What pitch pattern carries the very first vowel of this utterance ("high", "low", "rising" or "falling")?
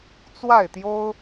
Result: falling